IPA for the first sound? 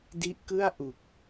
d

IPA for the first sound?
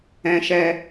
ɛ̃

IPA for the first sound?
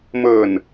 m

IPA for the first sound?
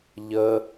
ʎ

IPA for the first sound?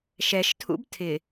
ʃ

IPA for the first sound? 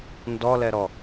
n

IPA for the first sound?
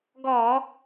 ɡ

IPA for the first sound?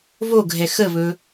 β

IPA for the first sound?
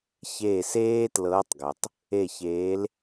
ç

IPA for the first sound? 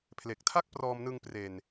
pʰ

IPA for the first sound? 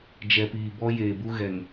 d͡ʒ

